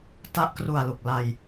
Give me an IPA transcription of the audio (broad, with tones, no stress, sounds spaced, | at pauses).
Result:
t a˦˥ ʔ k r u˨˩ a̯ l u˨˩ k̚ l a˧ j